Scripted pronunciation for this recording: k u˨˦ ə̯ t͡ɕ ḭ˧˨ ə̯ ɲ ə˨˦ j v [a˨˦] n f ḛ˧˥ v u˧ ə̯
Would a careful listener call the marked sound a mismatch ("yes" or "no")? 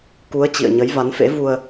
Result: no